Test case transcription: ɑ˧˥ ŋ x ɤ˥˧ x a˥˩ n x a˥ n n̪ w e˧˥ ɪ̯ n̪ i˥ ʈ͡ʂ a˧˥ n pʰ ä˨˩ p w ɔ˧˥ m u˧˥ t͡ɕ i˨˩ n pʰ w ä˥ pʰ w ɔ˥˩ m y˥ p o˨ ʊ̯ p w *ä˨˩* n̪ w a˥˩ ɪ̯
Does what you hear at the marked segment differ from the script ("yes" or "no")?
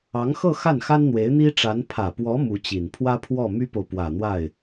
no